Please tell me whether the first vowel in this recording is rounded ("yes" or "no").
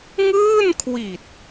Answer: no